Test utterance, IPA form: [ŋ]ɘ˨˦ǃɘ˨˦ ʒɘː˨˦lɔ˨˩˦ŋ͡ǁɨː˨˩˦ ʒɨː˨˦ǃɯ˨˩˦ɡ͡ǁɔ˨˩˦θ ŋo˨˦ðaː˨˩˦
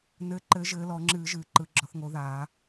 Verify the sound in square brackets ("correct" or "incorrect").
incorrect